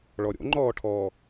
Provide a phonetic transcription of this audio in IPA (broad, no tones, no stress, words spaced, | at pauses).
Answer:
ɭɔɾʲo̰ŋ͡ǃɔːʈʰɔː